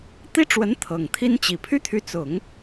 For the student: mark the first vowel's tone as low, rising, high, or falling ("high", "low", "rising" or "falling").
high